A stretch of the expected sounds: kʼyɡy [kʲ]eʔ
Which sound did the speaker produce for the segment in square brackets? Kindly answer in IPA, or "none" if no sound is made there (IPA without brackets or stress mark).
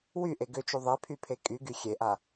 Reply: xʲ